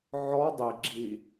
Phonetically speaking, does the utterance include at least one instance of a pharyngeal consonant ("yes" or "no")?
yes